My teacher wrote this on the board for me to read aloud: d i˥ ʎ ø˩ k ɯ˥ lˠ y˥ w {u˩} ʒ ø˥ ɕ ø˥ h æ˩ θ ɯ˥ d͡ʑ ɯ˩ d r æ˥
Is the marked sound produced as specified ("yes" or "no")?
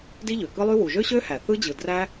yes